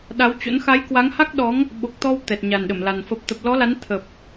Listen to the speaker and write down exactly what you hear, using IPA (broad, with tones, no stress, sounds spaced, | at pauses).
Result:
ɗ a˨˦ w t͡ɕ o̰˧˥ n x a˨˦ j k w a˨˦ ŋ h a˦˥ k̚ ɗ ɔ˨˦ ŋ | ɓ o˨˩ k̚ t̪ ɔ˧ w t̪ ɛ˨˩ t̚ ɲ a˨˩ n ɗ ə˧˩ m l a˨˩ n f ə˨˩ p̚ t̪ ə˨˩ p̚ l ɔ˨˦ l a˨˦ n t̪ʰ ə˨˩ p̚